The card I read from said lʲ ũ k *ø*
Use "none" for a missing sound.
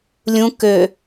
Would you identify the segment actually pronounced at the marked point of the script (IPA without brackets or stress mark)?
ø